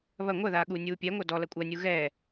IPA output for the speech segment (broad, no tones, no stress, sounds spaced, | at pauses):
β ɐ ŋʷ ɐ ð aː ɠ uː nʲ uː pʲ ɛ ŋʷ ɐ d ɔ l ɐ kʷʼ ɐ nʲ u ɣ ɛ